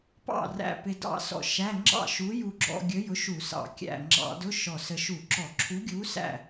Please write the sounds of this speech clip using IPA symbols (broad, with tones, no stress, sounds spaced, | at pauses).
p ɑ̰˥˩ r æ̰˧˩ p ɪ˧ d ɑ̰˥˩ s ɔ̰˧˩ ʃ æ˧˥˧ ŋ͡ǁ ɑ̰˥˩ ʃ u˨˥ j u˧ ɡ͡ǁ ɔ̰˧ ɡʲ ə˨˥ j ʊ˨˥ ʃ u˧˩˧ s ɑ̰˧˩ kʲ æ̰˧˩ ŋ͡ǁ ɑ̰˧˩˧ d ʊ˧˥˧ ʃ ɔ˧˩ s ə˧ ʃ u˧˩˧ ǁ ɔ˧˩˧ ǁʰ u˨˥ ɡʲ u˨˥ s æ̰˥˩